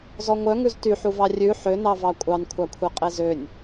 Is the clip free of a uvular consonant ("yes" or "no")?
no